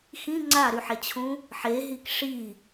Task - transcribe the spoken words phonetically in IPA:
x ĩ ŋ͡ǀ a ɾ y ħ e t͡ɕʰ ũ | ħ e ɦ i k ʂ i

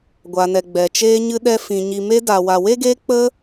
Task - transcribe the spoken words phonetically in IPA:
ɡʷ a˨ n ɛ˨ ɡ͡b ɛ˨ t͡ʃ eː˧ ɲ ɨ˧ ɗ ɛ˧ f ĩ˨ ɲ i˨ m e˧ d a˨ w a˨ w e˦ ɡ e˧ k͡p ə˧

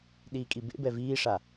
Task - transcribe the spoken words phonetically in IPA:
ɗ iː kʼ i b ḛ b ɛ v iː ʂ a

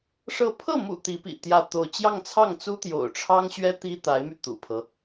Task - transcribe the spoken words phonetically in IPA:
ʂ ɤ˥˧ pʰ ɤ˥˩ m ṵ˨˩ t̪ i˧˥ p ḭ˨˩ t̪ j ä˥˧ t̪ o˥˧ ʊ̯ t͡ɕ j ɑ˥˧ ŋ t͡sʰ ɑ˥˩ ŋ t͡s u˥ t̪ j o̰˨˩ ʊ̯ ʈ͡ʂʰ ɑ˥ ŋ ɕ ɥ ɛ˥ t̪ i˥ t̪ a˧˥ ɪ̯ m y˧ t̪ ṵ˨˩ pʰ ɤ˦

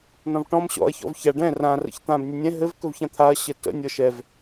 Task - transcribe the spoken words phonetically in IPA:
n ɔ̃ v ʈ ɔ̃ m ɕ ɔ̰ ɐ̯ ç ɔ̰ v ç a ɖ ɛ̃ r ã r ə̰ ç t̪ ã b nʲ ɵ nʲ ɛ̃ ɦ ɘ v k ɵ v ç ã t̪ʰ a ɐ̯ ɕ ɘ t ə̰ nʲ ɔ ʃ ɛ v

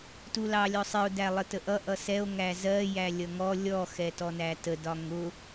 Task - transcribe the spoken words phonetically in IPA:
t u l ɑ lʲ ɔ sˤ ɪ o̯ d æ lˠ ə t ə ʔ ʌ ʔ ʌ s ɛ o̯ ŋ æ z ɜ j æ lʲ ʌ ŋ ɔ lʲ ɔ x ɛ t ɔ n æ t ə d ɒ ŋ ʊ

